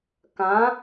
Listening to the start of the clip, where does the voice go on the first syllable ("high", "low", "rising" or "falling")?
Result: rising